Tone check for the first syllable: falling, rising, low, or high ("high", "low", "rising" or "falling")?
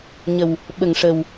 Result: low